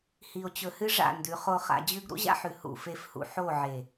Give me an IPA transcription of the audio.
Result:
h i˨ o̯ t͡ɕ ɵ˨ h ɨ˦ ʐ a̰˦˨ n d ʉ˨˦ χ o˨ χ a̰˨ d͡ʑ ʉ˦ ɡ ɾ ṵ˦ ʑ a̰˦ ħ ʉ˨ h ṵ˦˨ f e˦ f h ṵ˦ ħ o˦˨ ʕ e˨

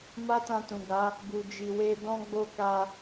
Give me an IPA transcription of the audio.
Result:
m a˦ t ã˧ t ũ˨ ɡ a˨˦ | b u˨ d͡ʒ i˨ w e˧ d ɔ̃˦ ɡ͡b o˦ k a˧

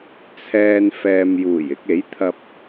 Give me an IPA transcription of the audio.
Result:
t͡sʰ ɛː˧ n f ɛː˨ m j uː˨˩ j ɪ˧ k̚ e˨˥ j t̪ʰ ɐ˧ p̚

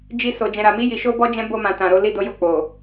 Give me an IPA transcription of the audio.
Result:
d͡ʒ i˧ s o˨ d͡ʒ ɛ̃˨ ɾ a˨ m i˧ j i˨ ʃ o˧ b ɔ˧ d͡ʒ ɛ̃˦ b o˧ m ã˨ t ã˨ ɾ o˨˦ l i˦˨ d o˨˦ j o˦˨ k͡p o˨

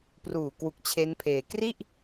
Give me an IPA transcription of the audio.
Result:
p r uː˨˩ k w u˨˩ k̚ t͡ɕʰ e˦˥ n pʰ eː˧ k r i˥˩ ʔ

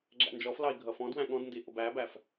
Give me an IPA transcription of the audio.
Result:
ɡ͡ǁ æ̰ n d͡ʒ ɔ f l ɑ i̯ ɡʱ ʌ f ɔ̃ d w æ̃ ɠ ɔ̃ d n d i ʔ ʊ b æ b æ f

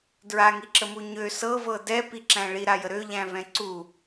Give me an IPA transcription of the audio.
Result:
d ɹ a ŋ i ǁ ə m u ɲ ø s ɤ v ɤ d ɛ p i ǁ æ̃ ɭ i ɾ a j ə ɾ ø ʎ æ̃ v ɛ̃ ǀ u

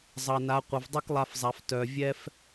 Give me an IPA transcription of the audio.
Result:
zˤ ʌ˩ n a˩˧ qʷ ʌ˩ v dˤ ɨ˥ k lˠ a˧ f zˤ a˩˧ f t œ˩ vʲ ɛ˥ f

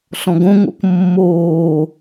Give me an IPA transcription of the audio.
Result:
ɬ ɔ̃ ɡ õ ŋ o̰ k mː oː

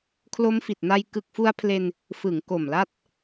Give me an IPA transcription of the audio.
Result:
kʰ l o˦˥ m f i˨˩ t̚ n a˧ j k ɯ˨˩ k̚ f u˧ a̯ pʰ l e˧ n | f ɯ˩˦ ŋ k o˨˩ m l a˦˥ t̚

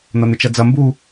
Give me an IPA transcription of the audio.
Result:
n̪ ɐ n̪ ɪ t͡ʃ ɐ d͡z ɐ m b u

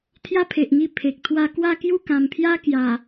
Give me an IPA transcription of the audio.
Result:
t̪ʰ j a˦ pʰ e˨ ʔ ŋ i˧ pʰ e˨ k̚ t̪ʰ w a˥˧ k w a˥˧ k j u˥˧ k ã˨˩ m pʰ j a˦ k j a˨˩

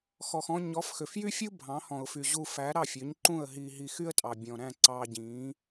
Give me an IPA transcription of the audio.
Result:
x ɔ˩ x ɔ̃˧ ɲ ɔ˩˥ f x ø˩ f j y˥ fʲ u˥ bʱ ɑ̃˩˥ h ɔ̃˩ ʊ̯ f y˩ ʑ u˧ f æ˩˥ ɾ ɑ˥˩ fʲ ø˩˥ ɲ ǃ ũ˥˩ ə̯ ɦ iː˧ ɦ i˧ x y˥ ə̯ tʼ ɑ˩ bʲ ɔ̃˩ ɾ æ̃˥˩ ǀ ɑː˧ ɟ ĩː˩˥

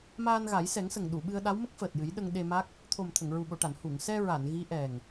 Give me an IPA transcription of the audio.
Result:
m aː˧ n ɣ a˨˩˦ j s ɛ˨˩˦ ŋ s ə˨˩ ŋ ɗ u˨˩˨ ɓ ɨ˧ ə̯ ɗ a˧˥ w m ə˦˥ k̚ f əː˨˩ t̚ j ɨ˨˩˦ j ɗ ə˧ ŋ ɗ e˧ m a˦˥ k̚ | t̪ʰ o˨˩ m t̪ʰ ə˨˩˨ ŋ ɹ u˨˩ ɓ o˨˩˨ ʈ a˨˩˨ n h u˨˩˨ ŋ s ɛ˧ ɹ a˨˩˨ n ɣ i˧˥ ʔ ɛ˨˩ ŋ

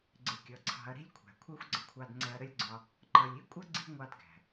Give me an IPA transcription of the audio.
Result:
ɡ͡ǀ ɪ˨ kʲ ʌ˨ ǀʰ ɑ̤˧ ɐ̯ ɾ i̤˦ lʲ kʷʰ æ̤˨ kʷʰ ɜ˦ xʷ ɡ͡ǀ ə˦ kʷʰ ɑ˧ d ŋ͡ǀ ɛ˧ ɐ̯ ɾ ə˦ lʲ ɡ͡ǀ ɒ˧ | ǃ ʌ˨ lʲ i˦ kʷʼ ʌ˦ ɡ͡ǀ i̤˦ ŋʷ ɑ˧ d ɡ æ̤˨

